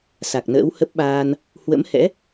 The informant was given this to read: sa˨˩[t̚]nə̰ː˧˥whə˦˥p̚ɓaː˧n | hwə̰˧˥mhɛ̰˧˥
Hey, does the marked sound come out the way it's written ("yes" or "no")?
no